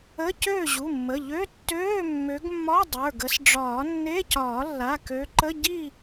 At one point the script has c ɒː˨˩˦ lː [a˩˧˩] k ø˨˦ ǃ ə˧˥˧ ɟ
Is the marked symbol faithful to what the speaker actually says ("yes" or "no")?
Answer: yes